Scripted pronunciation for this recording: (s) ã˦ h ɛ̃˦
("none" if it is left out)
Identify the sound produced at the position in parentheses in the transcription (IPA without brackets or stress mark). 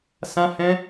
s